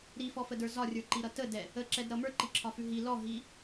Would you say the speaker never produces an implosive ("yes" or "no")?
yes